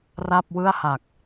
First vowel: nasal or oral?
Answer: oral